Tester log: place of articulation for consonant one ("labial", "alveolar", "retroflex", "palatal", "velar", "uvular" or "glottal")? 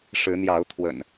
retroflex